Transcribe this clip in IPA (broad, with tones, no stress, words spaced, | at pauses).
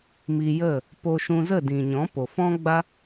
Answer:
mi˧jə˦˨ | po˧ʃũ˧zə˦˨ dĩ˨ɲɔ̃˨˦ po˨ fɔ̃˦ɡ͡ba˦